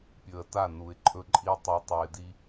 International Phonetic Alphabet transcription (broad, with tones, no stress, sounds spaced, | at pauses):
pʲ ɵ˨ ə̯ t a˦˨ n u˨ ɪ̯ ǃʼ ɵ˦ ǃʼ i˦ tˤ ʉ˨ tˤ u˨ ɪ̯ d i˦